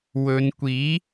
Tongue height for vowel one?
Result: mid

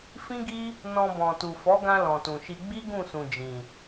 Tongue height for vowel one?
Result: high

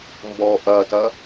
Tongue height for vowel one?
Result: mid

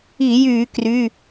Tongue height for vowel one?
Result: high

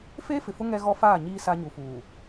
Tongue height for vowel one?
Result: mid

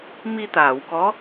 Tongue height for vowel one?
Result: high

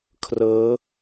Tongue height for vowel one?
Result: mid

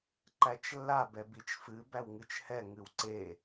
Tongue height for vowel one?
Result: low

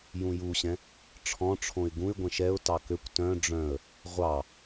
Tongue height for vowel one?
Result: high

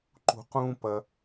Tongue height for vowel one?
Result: high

